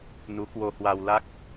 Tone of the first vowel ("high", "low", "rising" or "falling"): rising